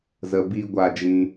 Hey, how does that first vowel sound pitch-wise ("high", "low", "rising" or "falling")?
low